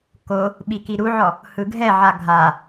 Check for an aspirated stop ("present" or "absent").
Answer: absent